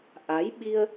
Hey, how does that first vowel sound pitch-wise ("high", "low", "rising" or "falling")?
rising